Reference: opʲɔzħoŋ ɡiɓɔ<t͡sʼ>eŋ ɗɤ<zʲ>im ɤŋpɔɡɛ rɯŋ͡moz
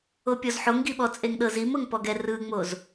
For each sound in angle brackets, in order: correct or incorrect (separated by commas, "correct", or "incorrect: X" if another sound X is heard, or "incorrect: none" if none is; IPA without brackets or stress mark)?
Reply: correct, incorrect: z